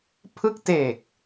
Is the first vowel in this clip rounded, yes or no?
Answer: no